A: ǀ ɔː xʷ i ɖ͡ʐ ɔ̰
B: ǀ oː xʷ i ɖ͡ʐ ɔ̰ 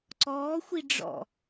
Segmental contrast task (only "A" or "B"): A